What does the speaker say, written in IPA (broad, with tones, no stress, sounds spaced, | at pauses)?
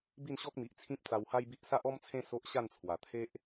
b i˥˧ n ɕ ɔ˦ k̚ m i˨ ʔ t͡sʰ ĩ˦ p̚ t͡s a˧ w h a˦ j b i˦ ʔ s a˦ ʔ ɔ˦ m t͡sʰ ẽ˦ s o˦ ʔ ɕ a˥˧ n t͡sʰ w a˨˩ t̪ʰ e˦ ʔ